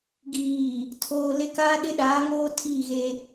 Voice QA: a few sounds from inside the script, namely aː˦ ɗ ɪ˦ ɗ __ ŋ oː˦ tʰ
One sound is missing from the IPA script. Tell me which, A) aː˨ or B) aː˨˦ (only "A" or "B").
B